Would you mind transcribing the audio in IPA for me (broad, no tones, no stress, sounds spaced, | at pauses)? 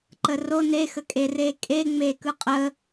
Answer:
ǃ ə r o n e x ə kʼ e r e kʼ e ŋ͡m e k ɯ qʼ ə